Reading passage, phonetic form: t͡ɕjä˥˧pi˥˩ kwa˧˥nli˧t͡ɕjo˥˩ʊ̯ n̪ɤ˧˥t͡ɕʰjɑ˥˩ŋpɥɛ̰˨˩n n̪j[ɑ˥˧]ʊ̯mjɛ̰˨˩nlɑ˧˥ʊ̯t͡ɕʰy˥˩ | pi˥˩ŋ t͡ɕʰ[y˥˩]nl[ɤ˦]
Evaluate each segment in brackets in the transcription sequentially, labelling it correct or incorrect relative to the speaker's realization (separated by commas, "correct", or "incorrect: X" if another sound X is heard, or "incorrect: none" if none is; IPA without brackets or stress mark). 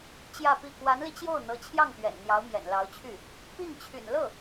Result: incorrect: ɑ˧˥, incorrect: y̰˨˩, incorrect: ɤ˥˩